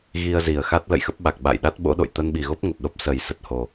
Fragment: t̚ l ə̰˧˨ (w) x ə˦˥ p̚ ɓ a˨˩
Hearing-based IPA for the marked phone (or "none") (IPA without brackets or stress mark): j